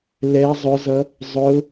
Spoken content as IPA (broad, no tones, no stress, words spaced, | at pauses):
lɛ zˤʊzʌ | zˤʊ